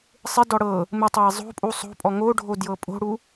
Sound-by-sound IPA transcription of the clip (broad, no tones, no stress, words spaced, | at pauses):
sˤɪdɔ ɽɤ | mɪ tˤɤjzˤo̤pʼu sˤo̤pʼɔ ŋoɖʱo djɤpʼo̤ɽu